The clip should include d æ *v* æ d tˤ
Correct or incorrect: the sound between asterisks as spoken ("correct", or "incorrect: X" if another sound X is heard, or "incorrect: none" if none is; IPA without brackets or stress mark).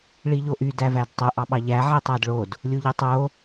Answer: correct